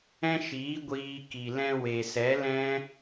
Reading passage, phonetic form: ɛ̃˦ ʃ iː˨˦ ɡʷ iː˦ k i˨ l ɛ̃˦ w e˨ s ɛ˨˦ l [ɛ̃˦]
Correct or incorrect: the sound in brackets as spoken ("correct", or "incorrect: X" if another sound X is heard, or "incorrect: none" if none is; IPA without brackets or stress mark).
correct